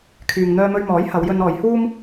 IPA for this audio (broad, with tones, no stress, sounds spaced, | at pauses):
kʰ yː˨ ŋ n̪ œː˧ m ɵ˧ ɥ m ɔː˨˥ j h ɐ˨˧ w j ɵ˧ n ɔː˨˧ j h uː˥ m